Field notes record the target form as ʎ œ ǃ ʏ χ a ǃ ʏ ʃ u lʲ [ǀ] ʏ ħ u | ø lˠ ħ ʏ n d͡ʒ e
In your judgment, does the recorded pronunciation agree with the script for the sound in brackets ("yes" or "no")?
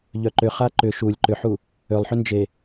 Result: no